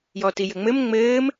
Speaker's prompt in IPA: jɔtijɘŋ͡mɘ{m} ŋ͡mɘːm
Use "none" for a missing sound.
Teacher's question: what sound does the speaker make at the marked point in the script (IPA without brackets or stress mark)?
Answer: m